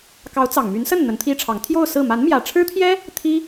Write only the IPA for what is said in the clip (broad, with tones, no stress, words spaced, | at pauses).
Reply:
kɑ˧˥ʊ̯t͡sɑ˨˩ŋmy˧˥n sə˥˩n n̪ə˧˥nt̪ʰi˥ʈ͡ʂʰɑ˧˥ŋ t̪ʰjo˥˧ʊ̯ sɹ̩˥˩ ma˧˥nmjä˨˩ʈ͡ʂʰɻ̩˥t̪ʰjɛ˥ | t̪ʰi˥